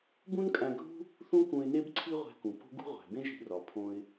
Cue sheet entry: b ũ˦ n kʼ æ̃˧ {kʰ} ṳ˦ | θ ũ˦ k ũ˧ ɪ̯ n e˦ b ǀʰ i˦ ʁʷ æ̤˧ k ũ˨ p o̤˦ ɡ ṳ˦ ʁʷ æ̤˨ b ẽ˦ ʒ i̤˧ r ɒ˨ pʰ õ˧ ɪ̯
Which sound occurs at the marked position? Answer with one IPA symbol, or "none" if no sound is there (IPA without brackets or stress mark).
ɡʱ